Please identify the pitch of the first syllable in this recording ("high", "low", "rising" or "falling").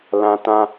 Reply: high